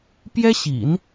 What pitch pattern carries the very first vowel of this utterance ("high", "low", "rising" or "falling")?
high